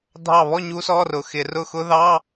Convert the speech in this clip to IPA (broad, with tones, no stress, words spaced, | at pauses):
dʱɑ˥˨ βɔ˥˨ ɲu˦˥sɔ˧˥˧rʊ˨˩ xɪ˧˩˧rʊ˥˨xʊ˦˥ ðɑ˧˥˧